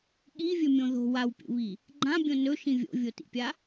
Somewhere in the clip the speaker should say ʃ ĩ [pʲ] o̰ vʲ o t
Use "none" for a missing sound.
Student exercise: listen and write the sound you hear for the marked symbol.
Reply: vʲ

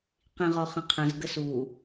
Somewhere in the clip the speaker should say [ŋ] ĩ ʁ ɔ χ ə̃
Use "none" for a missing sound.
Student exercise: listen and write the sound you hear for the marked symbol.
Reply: q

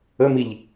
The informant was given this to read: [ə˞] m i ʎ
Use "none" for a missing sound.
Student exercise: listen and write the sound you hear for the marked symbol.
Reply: ə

